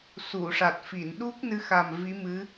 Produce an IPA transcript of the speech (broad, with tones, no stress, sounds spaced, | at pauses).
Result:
s u˨˩˨ ʂ a˨˩ t̚ f i˨˩˨ n ɗ u˦˥ k̚ n ɨ˧ x a˨˩ m v i˧˥ m ɨ˧˥